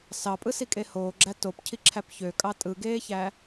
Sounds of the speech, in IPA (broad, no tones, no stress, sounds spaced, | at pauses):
s ɑ pʼ ɯ s i kʼ e h oː ɡ͡ǁ æ t o p cʰ i ǁʰ æ p ç ø kʼ ɑ tʼ ɯ ɡ eː ç æ